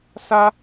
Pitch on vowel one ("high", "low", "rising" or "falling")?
high